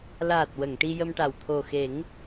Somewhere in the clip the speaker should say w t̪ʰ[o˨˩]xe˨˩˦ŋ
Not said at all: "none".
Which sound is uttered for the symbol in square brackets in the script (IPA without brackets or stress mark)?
o˨˩